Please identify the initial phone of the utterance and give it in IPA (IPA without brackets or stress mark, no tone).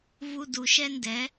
v